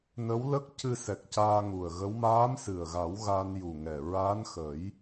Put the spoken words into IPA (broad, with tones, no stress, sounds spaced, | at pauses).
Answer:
n ə˧˥ w l ə˦˥ k̚ c ɨ˧ s ɛ˨˩ k̚ c aː˧ ŋ u˨˩ ə̯ ɣ ə˧˥ w m aː˧˥ m s ɨ˨˩ ə̯ ɣ a˨˩˦ w ɣ a˧ n j u˨˩ ŋ ɛ˨˩ ɹ a˧˥ n x ə˨˩˦ j